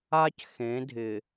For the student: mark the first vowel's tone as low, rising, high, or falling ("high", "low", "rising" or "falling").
high